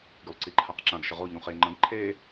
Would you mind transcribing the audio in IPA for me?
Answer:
ɡ y lˠ ǀ i ǃʰ a q ǁ ã ɡ ʃ ə ʁ o ʎ ũ χ e ŋ͡ǃ ə̃ ɡ ǃʰ e

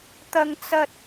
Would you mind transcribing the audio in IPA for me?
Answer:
t̪ ɐ˥ ŋ t͡s ɐ˥ t̚

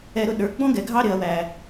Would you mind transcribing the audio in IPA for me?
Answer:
ɛ˨ ɾ ʊ˨ ɗ ə˞˨ ɡ͡b ɔ̃˦ ɡ ɛ˨ ɡʱ ɑ˦ ɾ ɪ˨ ɐ̯ w æ˨

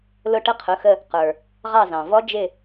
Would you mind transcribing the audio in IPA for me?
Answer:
l ʊ˦˨ ʈ ə˦˥ qʰ ʊ˩˧˩ x ə˦˨ | q ə˞˩ | ʁ ɑ˦˨ z ɑ̃˩ v ɔ˦˥ d͡ʒ ɪ˦˨

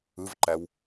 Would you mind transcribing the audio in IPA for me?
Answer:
ɯ v ǃ æ w

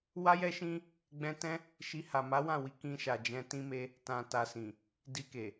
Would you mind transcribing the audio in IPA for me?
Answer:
w a˦ j ɛ˦ ʃ ĩ˦ | ɡ͡b ɛ̃˧ t ɛ̃˦ | ʃ i˧ h a˨ m a˨˦ w ã˦˨ w i˨˦ k ĩ˧ ʃ a˨ d͡ʒ ɛ̃˧ t ĩ˦ m e˦ | t ã˨ t a˨ s ĩ˨ | d i˧ k e˨

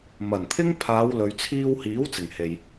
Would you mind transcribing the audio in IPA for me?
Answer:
m ɐ˨˩ n t̪ʰ ɪ˥ ŋ pʰ aː˨˧ w l ɵ˨ ɥ t͡sʰ iː˧ w h iː˨˥ w t͡s ɪ˨˩ ŋ h e˨ j

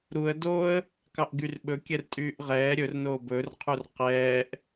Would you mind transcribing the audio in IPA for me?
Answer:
ɾ u ə̯ d o ə̯ | k ɑ ʔ ɡ y r ɓ ɵ kʲ ɛ r tʼ yː ʔ ʁ ɛː ɾʲ ɵ r n oː b ɵ r qʰ u r q ɛː ʔ

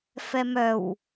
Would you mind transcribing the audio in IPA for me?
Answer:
f ɛ m œ w

